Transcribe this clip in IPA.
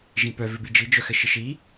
ʒ ĩ p œ v ɪ b i d͡ʒ i d͡ʒ œ x ɘ ʃ ɪ ʃ i

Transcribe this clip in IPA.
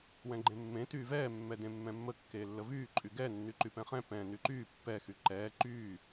w ɛ̃ ɡ͡ǃ ẽ mː ẽ t yː v ɛː mː ɛ d ẽ mː ɛ̃ mː ə kː eː lː ə v yː ǃʼ y ɡ ɛ nː y ǃ y p ɛ̃ χ ɛ̃ p ɛ̃ n y ǃ yː pː ɛ x y ǃ ɛː ǃ yː

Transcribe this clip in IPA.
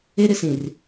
e˦ ɾ ɪ˦ s ĩ˨ r

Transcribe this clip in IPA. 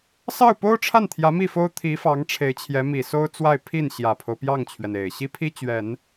s ɑ˥˩ ʊ̯ p o˥ ʊ̯ ʈ͡ʂʰ a˥˩ n t̪ʰ j ä˧˥ m i˥˩ f o˥ ʊ̯ t̪ʰ i˧˥ f ɑ˧˥ ŋ ʈ͡ʂʰ e˧˥ ɪ̯ t͡ɕʰ j ɛ˧˥ m i˨˩ s o˥ ʊ̯ t͡s w a˥˧ ɪ̯ pʰ i˥˩ n ɕ j ä˨˩ pʰ o˦ ʊ̯ p j ɑ˥˩ ŋ t͡ɕʰ ɥ ɛ˩ n e˨˩ ɪ̯ ɕ i˥ pʰ i˥ t͡ɕ ɥ ɛ˨˩˦ n

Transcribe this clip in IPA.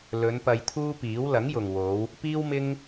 l ɵ˨˧ n p ɐ˧ j t̪ʰ uː˥ p iː˨˥ w l ɐ˨˥ ŋ j ʊ˨ ŋ w o˨˧ w | p iː˥ w m ɪ˥ ŋ

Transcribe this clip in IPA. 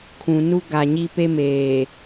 kʰ ũ˨ n u˦ ɡ a˨ ɲ i˦ p e˦ m eː˨

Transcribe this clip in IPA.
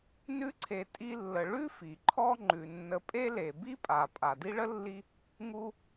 n ʉ˦ ǀʰ e˨ tʼ i˦ lː ə˨ ɭ ʉ˥ f i˩ ǃʰ ɔ˦ ŋ͡ǃ ʉ˩ nː ə˨ pʼ e˥ l e˩ b i˥ pʼ a˩ pʼ a˩ d i˥ ɭ ə˥ lː i˦ | ŋ u˦

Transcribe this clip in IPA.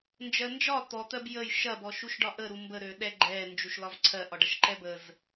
n d͡ʒ ɜ n d͡ʒ ɒ t̪ ɔ t̪ ɜ b j ə j ʃ ɐ b ɔ ʃ u ʃ ɖ ɒ ʔ ə ɾ u m b ə ɾ ø ɗ ɛ ɡ͡ǃ ɛ n d͡ʒ u ʃ l ɒ v ǀʰ ɜ ʔ ɒ ɖ ɐ ʃ ǃ ɛ b ə z

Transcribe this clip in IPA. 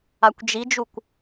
a kʷ d͡ʒ i d͡ʒ u kʷ

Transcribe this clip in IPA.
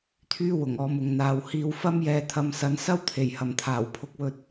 t̪ʰ yː˥ w ʊ˨˩ ŋ ɔː˨˧ m ʊ˨ ŋ n̪ aː˨ w h iː˧ w f ɐ˥ m j ɛː˧ t̪ʰ ɐ˧ m s ɐ˨˧ n s ɐ˥ w t̪ʰ e˨˩ j h ɐ˨˩ m t̪ʰ aː˨˩ w pʰ ʊ˧ k̚ w ɵ˧ t̚

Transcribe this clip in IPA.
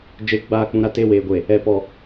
d͡ʒ e˨˦ ɡ͡b aː˨ k͡p ũ˨ ɾ a˨ t e˦˨ w eː˨ ɡʷ e˨ | ɛ˨ p ɔ˨

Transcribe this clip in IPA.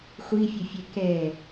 χʷ i fʲ ʊ fʲ ɛ k ɛ

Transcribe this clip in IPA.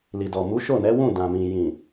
l i˨ d ɔ˨ m u˨˦ ʃ o˦˨ n ɛ˨˦ w ũ˦˨ d ã˨ m ĩ˨ j ĩ˨

